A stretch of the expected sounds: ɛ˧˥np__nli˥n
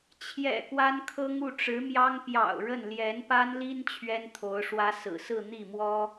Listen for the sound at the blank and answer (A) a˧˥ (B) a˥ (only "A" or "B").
B